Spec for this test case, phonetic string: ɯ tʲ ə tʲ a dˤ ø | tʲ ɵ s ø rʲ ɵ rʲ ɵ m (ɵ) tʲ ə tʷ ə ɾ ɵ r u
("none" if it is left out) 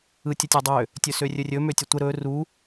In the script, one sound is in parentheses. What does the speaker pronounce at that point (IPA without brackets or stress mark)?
ø